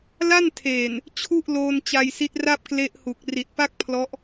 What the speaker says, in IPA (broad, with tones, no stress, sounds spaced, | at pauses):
l a˥˩ n tʰ eː˨˩ n | t͡ɕʰ u˥˩ ʔ l oː˧ n t͡ɕ a˧ j s i˦˥ t̚ r a˥˩ p̚ k l e˦˥ ʔ h u˨˩ k̚ r i˨˩ t̚ p a˥˩ k̚ pʰ l ɔ˦˥ ʔ